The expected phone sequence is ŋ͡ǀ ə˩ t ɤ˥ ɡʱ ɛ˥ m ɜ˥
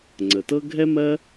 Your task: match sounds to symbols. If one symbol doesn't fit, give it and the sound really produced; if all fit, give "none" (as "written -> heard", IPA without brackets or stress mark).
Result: none